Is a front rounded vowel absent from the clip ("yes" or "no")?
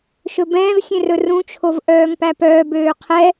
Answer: no